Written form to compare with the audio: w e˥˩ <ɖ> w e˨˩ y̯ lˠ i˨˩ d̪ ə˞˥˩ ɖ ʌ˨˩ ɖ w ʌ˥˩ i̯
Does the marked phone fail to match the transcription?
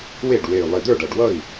no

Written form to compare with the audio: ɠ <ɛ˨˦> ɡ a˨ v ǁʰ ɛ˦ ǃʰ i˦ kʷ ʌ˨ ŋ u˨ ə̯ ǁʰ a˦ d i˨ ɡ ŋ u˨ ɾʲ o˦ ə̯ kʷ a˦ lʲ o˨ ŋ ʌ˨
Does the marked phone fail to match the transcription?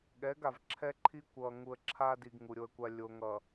no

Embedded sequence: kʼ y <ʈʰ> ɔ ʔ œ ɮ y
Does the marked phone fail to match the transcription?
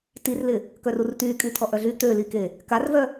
yes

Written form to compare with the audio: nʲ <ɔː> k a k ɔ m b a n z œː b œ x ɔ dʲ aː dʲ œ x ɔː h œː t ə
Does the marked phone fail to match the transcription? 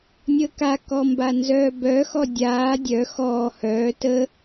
yes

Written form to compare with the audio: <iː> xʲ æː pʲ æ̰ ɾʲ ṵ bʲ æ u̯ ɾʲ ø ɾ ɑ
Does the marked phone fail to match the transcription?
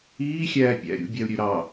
no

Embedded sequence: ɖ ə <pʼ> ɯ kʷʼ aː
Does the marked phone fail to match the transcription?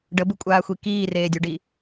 yes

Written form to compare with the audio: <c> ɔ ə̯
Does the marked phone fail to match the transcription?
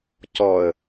no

